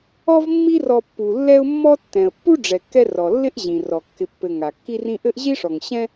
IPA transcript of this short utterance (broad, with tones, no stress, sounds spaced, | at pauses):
ɔ˦ v mː i˦ r ɔ˨ pː u˩ lː ɛ˦ ʊ̯ mː ɔ˦ tː ɛ̃˩ ə̯ pː u˥ ɖ͡ʐ ɛ˩ kː ɛ˦ r ɔ˩ lː ɪ˥ ʔ ʑ ĩ˩ r ɔ˩ kː ɪ˨ pː ɘ˨ ŋ a˩ kː i˦ r ĩ˦ ʔ ɘ˥ ʔ ʑ i˥ ʂ ɔ˨ ŋ ɕ ɛ̃˥